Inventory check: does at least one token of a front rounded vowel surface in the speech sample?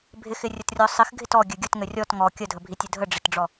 no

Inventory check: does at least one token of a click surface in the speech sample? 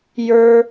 no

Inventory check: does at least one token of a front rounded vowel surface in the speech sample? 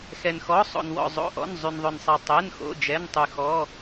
yes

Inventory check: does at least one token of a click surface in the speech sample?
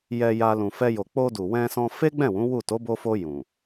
no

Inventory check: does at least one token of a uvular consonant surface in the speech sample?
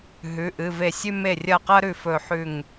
yes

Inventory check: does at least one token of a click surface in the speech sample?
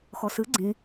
yes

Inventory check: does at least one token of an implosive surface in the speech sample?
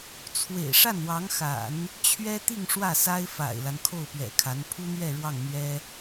no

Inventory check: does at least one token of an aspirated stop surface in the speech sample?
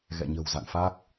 no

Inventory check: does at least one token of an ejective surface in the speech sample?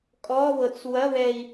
yes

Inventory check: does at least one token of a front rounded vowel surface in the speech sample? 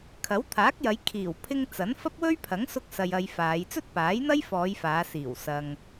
no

